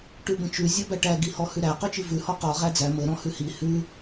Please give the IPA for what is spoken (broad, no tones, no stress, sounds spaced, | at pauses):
ʈ ʉ b ə̃ t͡ʃ ʉ zʲ ɔ b æ ʈ æ ɡ i h ɔ h ʉ ɾ æ q ø t͡ʃ i v ʉ h ɔ q ɔ ʁ æ d͡z æ m ə ɾ ɔ̃ h ʉ h i h ʉ